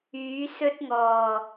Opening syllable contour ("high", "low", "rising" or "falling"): rising